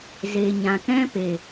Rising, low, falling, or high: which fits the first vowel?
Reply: low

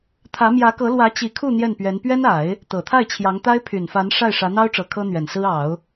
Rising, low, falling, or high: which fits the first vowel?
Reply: rising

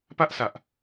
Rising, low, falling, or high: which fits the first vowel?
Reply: high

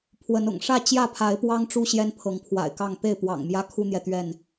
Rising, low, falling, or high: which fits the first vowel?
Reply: rising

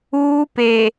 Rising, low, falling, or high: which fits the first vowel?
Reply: high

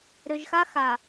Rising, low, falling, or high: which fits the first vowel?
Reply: low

